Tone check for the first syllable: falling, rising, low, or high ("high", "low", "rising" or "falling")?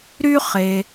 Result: high